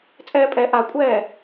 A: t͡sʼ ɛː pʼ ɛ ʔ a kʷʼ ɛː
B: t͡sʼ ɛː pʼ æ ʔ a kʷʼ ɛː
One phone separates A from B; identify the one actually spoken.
A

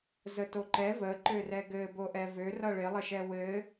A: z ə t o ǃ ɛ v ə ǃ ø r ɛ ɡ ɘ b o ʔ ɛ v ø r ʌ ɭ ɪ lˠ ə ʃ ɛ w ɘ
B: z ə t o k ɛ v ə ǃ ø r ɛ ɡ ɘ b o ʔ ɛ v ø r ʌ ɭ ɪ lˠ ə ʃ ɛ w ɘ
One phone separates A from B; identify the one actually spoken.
A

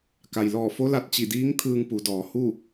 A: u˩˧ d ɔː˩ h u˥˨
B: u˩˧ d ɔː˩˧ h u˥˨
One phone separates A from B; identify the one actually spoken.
B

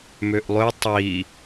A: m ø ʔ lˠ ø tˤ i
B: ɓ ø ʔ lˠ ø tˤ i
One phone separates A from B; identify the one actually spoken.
A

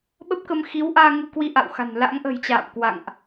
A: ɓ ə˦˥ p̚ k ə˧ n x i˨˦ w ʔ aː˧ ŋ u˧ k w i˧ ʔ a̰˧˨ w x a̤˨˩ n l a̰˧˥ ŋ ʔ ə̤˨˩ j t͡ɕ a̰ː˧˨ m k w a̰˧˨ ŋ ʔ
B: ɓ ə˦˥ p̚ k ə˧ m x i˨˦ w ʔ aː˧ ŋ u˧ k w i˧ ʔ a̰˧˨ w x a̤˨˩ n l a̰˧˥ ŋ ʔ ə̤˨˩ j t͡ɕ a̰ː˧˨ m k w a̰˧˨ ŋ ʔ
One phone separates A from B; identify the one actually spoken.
B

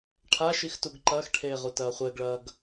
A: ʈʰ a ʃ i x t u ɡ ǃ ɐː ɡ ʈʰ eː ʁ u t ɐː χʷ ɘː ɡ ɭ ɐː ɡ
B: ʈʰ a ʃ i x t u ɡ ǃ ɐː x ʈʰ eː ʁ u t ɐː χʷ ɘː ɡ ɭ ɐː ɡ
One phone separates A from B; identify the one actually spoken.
B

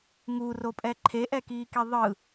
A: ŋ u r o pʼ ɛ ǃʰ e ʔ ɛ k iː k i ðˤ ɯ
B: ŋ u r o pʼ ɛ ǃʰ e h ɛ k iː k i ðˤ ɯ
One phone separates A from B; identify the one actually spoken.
A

